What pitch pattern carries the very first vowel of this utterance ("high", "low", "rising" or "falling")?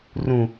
low